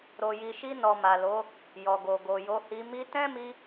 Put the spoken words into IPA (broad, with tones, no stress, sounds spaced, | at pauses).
ɾ o˨ j i˨ ʃ i˧ n ɔ˨ m a˨ l o˨˦ | j ɔ˨ ɡ o˨ ɡ o˨ j o˧ h i˧ m i˧ t ɛ̃˦ m i˧